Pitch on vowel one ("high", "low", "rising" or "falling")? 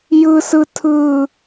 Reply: high